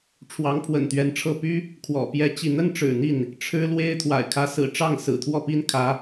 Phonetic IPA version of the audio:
ʈ͡ʂʰwɑ˧˥ŋpʰwə̰˨˩nt̪ɥɛ˧˥nʈ͡ʂʰɤ˥˩ py˥ | kʰwɔ̰˨˩ pjɛ˥˧t͡ɕi˥˩ n̪ə˥nʈ͡ʂɻ̩˨˩n̪i˥˩n | ʈ͡ʂʰɻ̩˥lwe˥ɪ̯ t̪ʰwa̰˨˩ɪ̯kʰä˧˥sɹ̩˨˩ ʈ͡ʂɑ˥˩ŋsɹ̩˨˩t̪ʰwɔ˥˩pi˥n kʰä˧˥

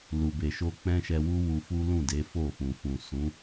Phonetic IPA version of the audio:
lu˧be˧ʃo˦ k͡pɛ̃˦ʃɛ˧wu˦ wu˧fu˦lũ˦˨de˨˦ fo˦˨fũ˨fũ˨ sũ˨˦

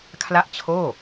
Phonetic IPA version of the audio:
kʰla˥˩ʔt͡ɕʰoː˥˩

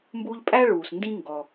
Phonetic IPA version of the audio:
mbuː˦ʎpʼæ˥ ɭuː˨sndĩ˥ ŋɡɔ˨

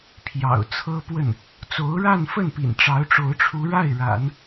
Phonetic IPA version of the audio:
pʰjɑ̰˨˩ʊ̯t͡sʰɤ˥pwə˥˩n | t͡so˧˥ʊ̯ɻa˥˧nfə˥˩npḭ˨˩n ʈ͡ʂɑ˧˥ʊ̯ʈ͡ʂo˧˥ʊ̯ʈ͡ʂʰu˧˥ɻa˥˩ɪ̯ ɻa̰˨˩˦n

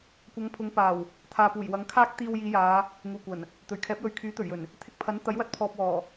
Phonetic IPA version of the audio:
kʷɐ˨˧ŋpʰʊ˨˧ŋpaː˨˩w | t̪ʰaː˨puː˨˩j wɐ˨˥ŋkʰaː˥k̚ t̪iː˧wjiː˨˧jaː˨˧ | ŋuː˨˩kʷɐ˨˩n | t̪ɵ˨˩ɥkʰɛː˨˥p̚jɵ˨˧ɥ kʰyː˨˥t̪ɵ˨˩ɥjɵ˨˩n | t̪ʰɪ˧k̚pʰɐ˨˥n t̪ɐ˨˥j wɐ˧t̚pʰɔː˨p̚wɔː˨˩

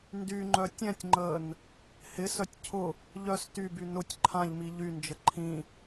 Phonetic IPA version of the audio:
ndyŋ͡ǃœ tʲɛ̃tʲŋ͡ǃəːn | hɪsœtʲ cʰʊ | ʎœs tyby nʊtʲ ǃʰãʎmi ʎynd͡ʒə ǃʰĩ

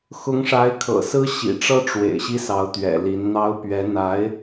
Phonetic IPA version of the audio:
xʊ˧˥ŋʂa˧˥ɪ̯kʰɤ̰˨˩sɹ̩˥ ɕḭ˨˩ʈ͡ʂɤ˥ʈ͡ʂwḛ˨˩ɪ̯ ɕi˥sɑ˧˥ʊ̯t̪ɥɛ̰˨˩ li˧˥n n̪ɑ˥ʊ̯ pɥɛ˧˥ n̪a˧˥ɪ̯

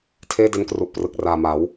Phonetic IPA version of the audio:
tʰeː˥˩de˦˥nkru˨˩ʔprɯ˨˩k̚ raː˨˩ma˩˦w

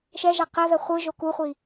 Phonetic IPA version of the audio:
ʃɛʒa qɛvɛ χʷɯ ʒokuχʷi

